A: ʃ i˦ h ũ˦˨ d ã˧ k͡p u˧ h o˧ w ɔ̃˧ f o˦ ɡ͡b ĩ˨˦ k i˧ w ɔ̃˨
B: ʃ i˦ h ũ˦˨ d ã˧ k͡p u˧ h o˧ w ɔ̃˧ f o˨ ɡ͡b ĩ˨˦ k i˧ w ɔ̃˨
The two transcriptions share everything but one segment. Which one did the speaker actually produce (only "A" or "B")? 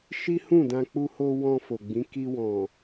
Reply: B